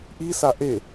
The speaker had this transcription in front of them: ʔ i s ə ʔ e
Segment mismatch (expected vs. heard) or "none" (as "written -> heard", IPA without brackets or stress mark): ə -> a